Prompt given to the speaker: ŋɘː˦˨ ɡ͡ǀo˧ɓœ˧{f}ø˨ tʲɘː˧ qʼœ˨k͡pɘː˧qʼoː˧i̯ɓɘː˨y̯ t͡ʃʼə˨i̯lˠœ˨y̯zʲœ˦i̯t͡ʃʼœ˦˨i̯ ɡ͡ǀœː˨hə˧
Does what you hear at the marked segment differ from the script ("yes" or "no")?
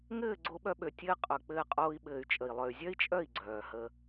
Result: yes